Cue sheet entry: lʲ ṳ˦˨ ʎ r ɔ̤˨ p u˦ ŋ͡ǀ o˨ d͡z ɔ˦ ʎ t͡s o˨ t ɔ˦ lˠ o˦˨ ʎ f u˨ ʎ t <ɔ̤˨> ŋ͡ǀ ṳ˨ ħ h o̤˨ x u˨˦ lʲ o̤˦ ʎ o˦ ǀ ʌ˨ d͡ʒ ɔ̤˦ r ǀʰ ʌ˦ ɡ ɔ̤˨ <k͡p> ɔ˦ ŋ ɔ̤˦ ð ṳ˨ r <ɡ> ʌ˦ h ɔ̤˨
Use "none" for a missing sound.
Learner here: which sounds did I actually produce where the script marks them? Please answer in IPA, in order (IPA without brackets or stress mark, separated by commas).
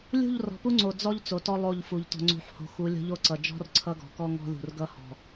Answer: ɔ̤˨, k, ɡ